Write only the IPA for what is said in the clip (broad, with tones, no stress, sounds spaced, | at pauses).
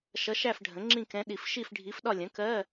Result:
ʃ ʌ˧˥ ʃ æ˥˧ f ɖʱ ə̃˩˥ ŋ͡ǁ ĩ˥˧ k ɛ̃˧˥ ɗ i˨ f ʃ i˥˧ f ɖʱ i˧˥ f ɗ ɒ˥˧ lʲ ə̃˩˥ k ɜ˧˥˧